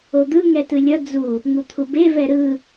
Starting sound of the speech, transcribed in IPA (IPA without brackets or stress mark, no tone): o